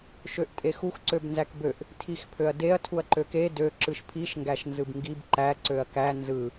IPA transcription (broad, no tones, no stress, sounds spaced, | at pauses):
ʃ ø ʔ tʼ e x u x ǀ ø b n z æ k b ø ʔ | tʰ i x pʰ ø ɐ̯ d e ɐ̯ tʰ u ɐ̯ ǃ ø k e d ø ǁ ɯ ʃ pʰ i ʃ ŋ ɡ æ ʃ n z ɯ b ŋ ɡ i b ǃ æ ǀ ø ɐ̯ k æ n z ɯ